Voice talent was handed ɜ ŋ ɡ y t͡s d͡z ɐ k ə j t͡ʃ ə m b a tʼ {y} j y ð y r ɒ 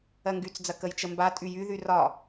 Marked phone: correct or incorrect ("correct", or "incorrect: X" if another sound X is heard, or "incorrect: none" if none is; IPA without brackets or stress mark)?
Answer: correct